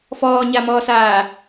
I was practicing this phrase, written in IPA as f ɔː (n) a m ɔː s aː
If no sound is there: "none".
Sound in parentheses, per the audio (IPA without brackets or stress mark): ɲ